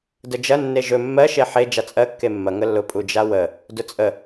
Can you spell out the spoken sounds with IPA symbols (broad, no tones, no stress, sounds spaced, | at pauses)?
d ə d͡ʒ ɐ nː e ʒ ɵ mː ɜ ʃ e ħ e d͡ʒ a t͡sʼ ɜ kː e mː ɐ ŋ ə lː ʊ pʼ u d͡ʒ a w ə | d ʊ t͡sʼ ə